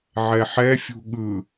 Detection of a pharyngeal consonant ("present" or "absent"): present